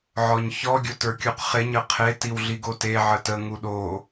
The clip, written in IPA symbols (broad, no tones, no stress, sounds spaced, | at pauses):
ʕ ɔ ɲ ç ɔ ɡʲ o t ə˞ kʲ u q χ e ɲ ə qʰ e t i w ɮ i ɡ o t e ʕ ə t ə ŋ u ɗ o